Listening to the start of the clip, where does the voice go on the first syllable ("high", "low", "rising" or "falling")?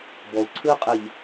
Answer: low